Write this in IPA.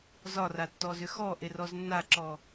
zɒratːɔzʏ xɔʔerɔz nːaǁɔ

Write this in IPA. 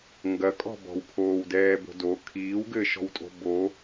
ŋɡɐkʼɔ̤ bɔ̤wpʰoːwdɛːbo̤ do kʰiːwɡɘːʃɔ̤wtʼo̤ bo

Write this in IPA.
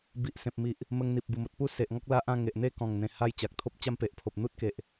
bi˨ʔ sẽ˨p̚mi˨ʔ | mə˧ŋn̪i˨p̚ bu˨˩mo˨t̚ pu˥˧se˨ʔŋɔ˦k̚ la˦ʔã˥˧ ŋe˨ʔ n̪e˥˧kɔ̃˨˩ŋn̪ẽ˨˩ ha˧j t͡ɕa˨k̚t̪ʰo˦p̚ t͡ɕa˦mpe˨ʔpʰo˨p̚ n̪u˦t̚ke˨ʔ

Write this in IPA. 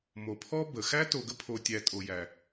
mo˩pʰɔ˦ bə˩xæ˥ to˨ɡə˦pʰo˨tʲæ˨ tʼo˨jæ˨

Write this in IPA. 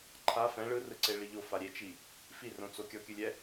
ǃʰa fɛ̃ ɭɯrɯǀeɭi ʎofa ɾʲet͡ʃi | firõt͡so kʲɔkʲɯlʲɛ

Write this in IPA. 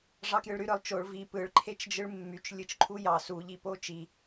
ʐɑkjɯɭɾy ɾɯlˠt͡ʃoɭ vi pɯɭ ǃʰet͡ʃd͡ʒɯɭmːyt͡ʃ lʲɯt͡ʃǃʰujɑ su ʎipot͡ʃi

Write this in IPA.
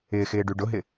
ɪːxɪːɖy ɖʊɦɪ

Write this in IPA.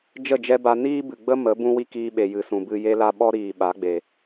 d͡ʒə˦˨ d͡ʒɛ˦ba˧ niː˦bɨ˨ ɡ͡bə˦ mə˨˦ bũ˦wi˦kiː˧ɓe˨ jɨ˨sũ˨bɨ˧ je˧la˧ ɓɔ˦ɾiː˨ ɓa˨˦ɡ͡be˨

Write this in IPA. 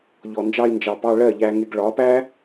ʎɔ˨nd͡ʒɑ˧i̯nd͡ʒɑ˨ pɑ˧ɭɜ˦˨ʎæ˧ŋɪ˧ɡ ɭɒ˨˦pæ˦

